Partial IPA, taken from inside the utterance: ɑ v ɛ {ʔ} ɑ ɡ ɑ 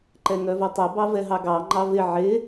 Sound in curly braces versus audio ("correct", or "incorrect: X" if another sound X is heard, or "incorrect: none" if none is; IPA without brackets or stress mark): incorrect: ɦ